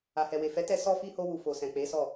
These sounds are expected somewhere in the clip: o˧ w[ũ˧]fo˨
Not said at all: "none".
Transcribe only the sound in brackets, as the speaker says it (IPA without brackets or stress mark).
u˧